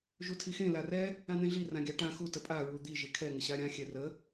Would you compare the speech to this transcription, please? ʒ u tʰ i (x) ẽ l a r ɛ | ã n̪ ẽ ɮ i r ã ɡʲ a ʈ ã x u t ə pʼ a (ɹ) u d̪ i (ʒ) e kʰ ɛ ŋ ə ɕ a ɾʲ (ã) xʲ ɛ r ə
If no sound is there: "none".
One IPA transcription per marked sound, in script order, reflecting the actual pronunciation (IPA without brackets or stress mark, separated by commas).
x, ɹ, ʒ, ã